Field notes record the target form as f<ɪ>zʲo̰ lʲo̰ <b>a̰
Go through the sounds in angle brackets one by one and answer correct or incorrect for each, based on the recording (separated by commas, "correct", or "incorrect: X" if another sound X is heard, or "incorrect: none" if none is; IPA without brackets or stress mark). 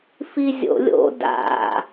incorrect: i, incorrect: d